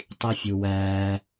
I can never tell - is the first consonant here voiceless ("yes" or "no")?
yes